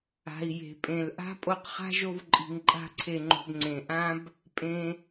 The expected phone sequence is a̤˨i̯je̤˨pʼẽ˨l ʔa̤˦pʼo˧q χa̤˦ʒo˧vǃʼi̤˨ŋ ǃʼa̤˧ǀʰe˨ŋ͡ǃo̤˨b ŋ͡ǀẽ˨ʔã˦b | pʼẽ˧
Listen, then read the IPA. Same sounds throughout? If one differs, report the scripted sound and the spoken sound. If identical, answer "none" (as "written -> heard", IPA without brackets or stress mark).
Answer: none